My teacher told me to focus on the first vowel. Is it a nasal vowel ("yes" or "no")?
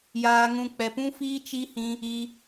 no